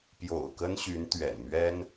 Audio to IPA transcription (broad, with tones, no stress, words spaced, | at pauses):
pjo̰˨˩ʊ̯ kə˥nɕy˧˥nt̪ɥɛ̰˨˩n mɥɛ˥n